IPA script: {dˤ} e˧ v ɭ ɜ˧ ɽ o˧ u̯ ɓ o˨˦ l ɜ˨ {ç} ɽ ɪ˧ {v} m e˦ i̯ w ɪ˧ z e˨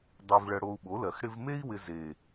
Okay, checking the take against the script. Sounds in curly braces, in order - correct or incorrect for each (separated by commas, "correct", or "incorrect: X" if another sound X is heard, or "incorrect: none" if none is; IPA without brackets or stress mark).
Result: correct, incorrect: x, correct